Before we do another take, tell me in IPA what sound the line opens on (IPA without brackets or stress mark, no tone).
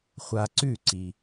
χʷ